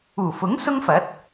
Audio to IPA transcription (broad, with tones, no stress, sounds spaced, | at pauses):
uː˨˩ f ʊ˨˥ ŋ s ʊ˥ ŋ f ɐ˨˥ t̚